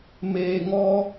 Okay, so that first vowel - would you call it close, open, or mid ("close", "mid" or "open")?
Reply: mid